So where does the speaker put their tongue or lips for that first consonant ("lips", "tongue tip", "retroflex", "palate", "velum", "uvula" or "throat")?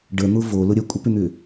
retroflex